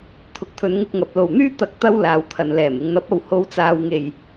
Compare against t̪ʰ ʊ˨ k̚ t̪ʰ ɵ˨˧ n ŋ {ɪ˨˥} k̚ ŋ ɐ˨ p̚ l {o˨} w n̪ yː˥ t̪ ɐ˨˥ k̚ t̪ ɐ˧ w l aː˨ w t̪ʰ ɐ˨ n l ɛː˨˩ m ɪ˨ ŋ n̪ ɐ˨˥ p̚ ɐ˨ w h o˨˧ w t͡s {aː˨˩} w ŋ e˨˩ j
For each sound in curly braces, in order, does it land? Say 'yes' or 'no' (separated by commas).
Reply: no, no, no